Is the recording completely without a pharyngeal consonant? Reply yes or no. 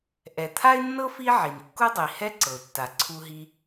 no